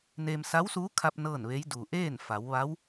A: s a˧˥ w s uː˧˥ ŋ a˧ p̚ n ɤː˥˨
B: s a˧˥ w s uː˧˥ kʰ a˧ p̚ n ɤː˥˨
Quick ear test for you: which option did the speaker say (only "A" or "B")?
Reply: B